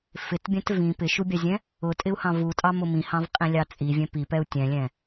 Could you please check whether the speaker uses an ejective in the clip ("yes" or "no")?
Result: yes